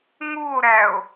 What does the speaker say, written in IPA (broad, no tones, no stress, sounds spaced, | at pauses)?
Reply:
ŋ u o̯ ɾ æ o̯